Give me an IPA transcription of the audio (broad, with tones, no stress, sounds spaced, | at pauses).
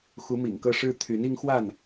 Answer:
x u˨˦ m ḭ˨˩ ŋ k ɤ˦ ʂ ɻ̩˦ t̪ʰ y˨˦ n i˦ ŋ x w a˥˨ n